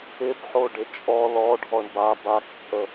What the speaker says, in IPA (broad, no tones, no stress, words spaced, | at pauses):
ɪbħo ɖɪt͡ʃʼɔ lɔ ɖʱɔɳba bakt͡sʼə